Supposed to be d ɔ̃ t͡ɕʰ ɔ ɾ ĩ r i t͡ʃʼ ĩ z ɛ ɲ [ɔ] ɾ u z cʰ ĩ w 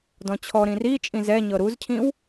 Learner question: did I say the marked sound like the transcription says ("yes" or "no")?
no